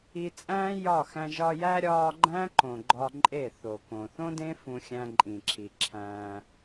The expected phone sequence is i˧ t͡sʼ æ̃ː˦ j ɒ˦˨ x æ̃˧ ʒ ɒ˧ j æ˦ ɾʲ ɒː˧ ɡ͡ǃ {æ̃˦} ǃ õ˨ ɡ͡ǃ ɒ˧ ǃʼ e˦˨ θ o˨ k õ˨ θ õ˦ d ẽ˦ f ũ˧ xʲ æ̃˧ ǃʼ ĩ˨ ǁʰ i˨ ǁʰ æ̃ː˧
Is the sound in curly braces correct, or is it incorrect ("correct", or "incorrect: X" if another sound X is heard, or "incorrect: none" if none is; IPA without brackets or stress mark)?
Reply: correct